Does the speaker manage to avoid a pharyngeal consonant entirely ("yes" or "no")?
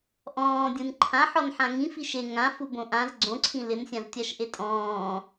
no